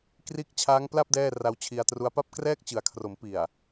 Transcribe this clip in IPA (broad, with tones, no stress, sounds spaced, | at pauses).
k r iː˦˥ k̚ t͡ɕʰ aː˦˥ ŋ p l a˥˩ p̚ d ɛː˥˩ r a˦˥ w t͡ɕʰ i˧ a̯ t r u˦˥ a̯ p a˥˩ p̚ k r ɛː˥˩ k̚ t͡ɕ ɯ˩˦ a̯ kʰ r o˩˦ m p i˨˩ a̯